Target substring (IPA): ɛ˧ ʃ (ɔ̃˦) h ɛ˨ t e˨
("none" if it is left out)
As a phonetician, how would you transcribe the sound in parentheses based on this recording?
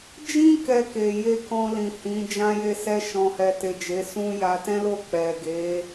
ɔ̃˨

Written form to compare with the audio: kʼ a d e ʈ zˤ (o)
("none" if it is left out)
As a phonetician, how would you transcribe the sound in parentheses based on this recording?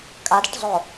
o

